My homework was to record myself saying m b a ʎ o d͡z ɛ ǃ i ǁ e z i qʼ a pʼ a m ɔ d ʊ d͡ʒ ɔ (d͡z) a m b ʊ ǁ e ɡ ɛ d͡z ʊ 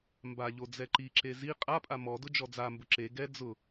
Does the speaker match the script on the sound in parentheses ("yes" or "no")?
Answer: yes